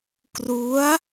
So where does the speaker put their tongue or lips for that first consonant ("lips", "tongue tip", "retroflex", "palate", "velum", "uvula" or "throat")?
velum